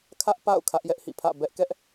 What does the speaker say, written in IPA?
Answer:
kʰ ä˦ ʔ p a̰˦˨ ʊ̯ kʰ ä˦ ʔ j ɛ˦ ʔ h ḭ˦˨ pʰ ä̰˦˨ b ɛ˦ ʔ k ɛ˦ ʔ

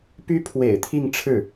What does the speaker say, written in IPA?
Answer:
p y˥ pʰ w ḛ˨˩ ɪ̯ t̪ʰ i˥˧ ŋ ʈ͡ʂʰ ɻ̩˥˩

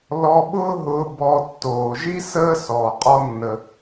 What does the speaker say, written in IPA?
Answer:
l ɔ˧ ɓ ʊː˥ ɦ ʊː˧ b ɔ˧ tː oː˩ ʒ i˥ s əː˥ s ɔː˩ qʼ ɔ˧ nː ə˩

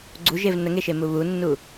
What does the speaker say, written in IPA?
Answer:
ɡ͡ǀ u ʒ e v n ə ŋ e ʃ e m u β u nː u

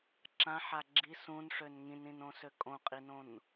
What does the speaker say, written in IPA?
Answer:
ǁ ã ħ a ɡ͡ǁ i s ũ n ʂ ø n ŋ ĩ n ĩ n õ s ø kʼ õ qʼ i n õ n

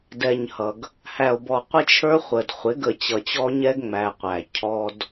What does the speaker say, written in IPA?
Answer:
d ɛ˨ ɲ h ʌ˨ ɡ | h æ˨ o̯ b ɔ˨ qʷ ɪ˦ t͡ʃʰ ə˞˦ χʷ ə˨ d χʷ ɪ˨˦ ɡ ə˨ t͡ɕ ʌ˨ t͡ɕ ɔ˦ ɲ ɛ˦ ɡ ŋ͡m æ˨ qʷ æ˨ cʰ ɔ˦ d

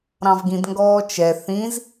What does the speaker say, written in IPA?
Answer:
ɾ ɑ̃ v ɡ ĩ d ŋ ɡ ɔː t͡ʃ ɛ θ ĩ z

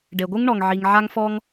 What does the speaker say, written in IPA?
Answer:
ɖ e˩ ɡʷ ɯ˥ ŋ ɳ ɔ˩ ŋ ʕ i˩ ŋ ʕ a˥ ŋ f ɔ˥ ŋ

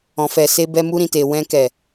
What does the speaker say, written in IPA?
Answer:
ɔ̃˨ f ɛ˨ s e˧ b ɛ˧ m u˧ ɾ ĩ˨ t e˨ w ɛ̃˧ k ɛ˨

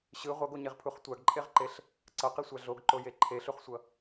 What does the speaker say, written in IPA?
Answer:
ɕ ɯ ʁʷ ʌ ɡ o ɲ e ʁ pʰ u χ tʷ a ɡ ǃʼ e ʁ ǃ e ɬ | ǀ ʌ q i sʷ a ɮ o ɡ ǃ o j e ǃʰ e ɬ u χ sʷ ʌ

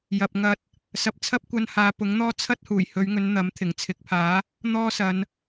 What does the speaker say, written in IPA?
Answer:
j ɐ˨ p̚ ŋ ɐ˧ t̚ | s ɐ˨˥ p̚ t͡sʰ ɐ˥ p̚ kʷ ɐ˧ n h aː˨˧ p ʊ˨˥ ŋ n̪ ɔː˥ t͡sʰ ɐ˥ t̚ h uː˨˩ j h ɵ˨˧ ɥ ŋ ɵ˨˧ n n̪ ɐ˨˥ m t̪ʰ ɪ˨˩ ŋ t͡sʰ ɪ˨˥ k̚ pʰ aː˨˥ | n̪ ɔː˥ s ɐ˨˧ n

